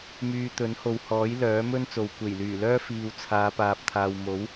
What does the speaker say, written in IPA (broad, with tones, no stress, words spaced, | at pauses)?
myː˧ t̪ɵ˨˥nho˨whɔː˨˥j lœː˨˥mɵ˥n t͡so˨w kʷe˨˩jlyː˨˩lœː˥ fiː˧w t͡sʰaː˨˧paː˨p̚t̪ʰaː˨w mo˨˥w